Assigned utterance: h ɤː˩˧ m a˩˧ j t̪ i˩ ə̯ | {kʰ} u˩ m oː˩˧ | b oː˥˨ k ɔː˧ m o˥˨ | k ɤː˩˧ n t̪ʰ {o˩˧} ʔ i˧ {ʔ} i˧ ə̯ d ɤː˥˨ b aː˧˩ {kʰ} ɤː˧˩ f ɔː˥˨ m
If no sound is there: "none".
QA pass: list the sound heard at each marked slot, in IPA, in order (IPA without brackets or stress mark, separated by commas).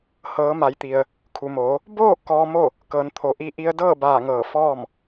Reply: kʰ, o˩˧, ʔ, ŋ